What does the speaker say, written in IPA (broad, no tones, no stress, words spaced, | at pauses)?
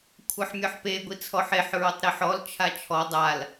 kʷʰɤħmʲɔħpe ɡʷit͡sʰɔħeħ ɹotˤɾiħɔl t͡ʃʰat͡ʃʰɔ dˤal